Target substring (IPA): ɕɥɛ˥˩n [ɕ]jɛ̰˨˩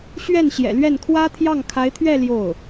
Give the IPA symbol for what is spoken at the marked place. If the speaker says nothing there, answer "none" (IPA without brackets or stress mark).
ɕ